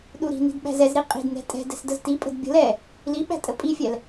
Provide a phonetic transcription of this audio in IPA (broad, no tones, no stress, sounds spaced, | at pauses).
ɗ u ɾ i̤ n i̤ d ɓ æ̤ z ɛ z ɾ i qʼ i̤ d n ɛ̤ tʼ ɛ̤ d ɛ̤ s d ə z t i pʼ ə̤ d bʲ ə̤ l ɛ | l i ɓ æ̤ tʼ ə pʼ i fʲ ɛ l